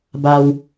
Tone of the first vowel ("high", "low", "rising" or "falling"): low